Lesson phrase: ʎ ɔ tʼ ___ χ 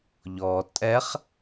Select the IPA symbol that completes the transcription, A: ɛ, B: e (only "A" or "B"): A